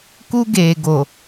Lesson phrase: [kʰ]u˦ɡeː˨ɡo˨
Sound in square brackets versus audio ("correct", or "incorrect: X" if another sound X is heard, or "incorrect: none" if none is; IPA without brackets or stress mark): incorrect: k